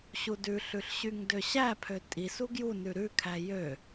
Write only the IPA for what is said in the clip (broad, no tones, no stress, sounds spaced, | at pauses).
ɕ u d ʉ ɬ ʉ ɬ ɕ y ŋ d ø ɕ æ pʰ ø tʼ i s u ɡ j u n ʉ ɾ ʉ kʰ æ j ø